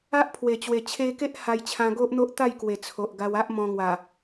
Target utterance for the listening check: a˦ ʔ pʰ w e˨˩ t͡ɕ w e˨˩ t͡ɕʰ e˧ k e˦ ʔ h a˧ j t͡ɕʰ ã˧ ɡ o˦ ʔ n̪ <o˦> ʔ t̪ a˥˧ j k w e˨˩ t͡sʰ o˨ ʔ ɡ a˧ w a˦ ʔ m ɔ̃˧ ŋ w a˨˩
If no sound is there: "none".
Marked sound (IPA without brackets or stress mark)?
o˦